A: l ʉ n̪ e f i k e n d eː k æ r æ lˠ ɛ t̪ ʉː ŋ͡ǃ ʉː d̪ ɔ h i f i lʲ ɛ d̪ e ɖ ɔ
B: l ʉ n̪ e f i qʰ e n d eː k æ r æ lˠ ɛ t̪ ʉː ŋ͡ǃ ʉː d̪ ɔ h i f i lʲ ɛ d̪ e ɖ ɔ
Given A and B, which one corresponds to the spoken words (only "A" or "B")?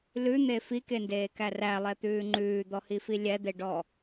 A